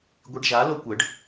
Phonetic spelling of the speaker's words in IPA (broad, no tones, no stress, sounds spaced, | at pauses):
ɡʷ i ɖ ʒ a l o kʷ ə ɖ